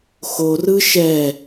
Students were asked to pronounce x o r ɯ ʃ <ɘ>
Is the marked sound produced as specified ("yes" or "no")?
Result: no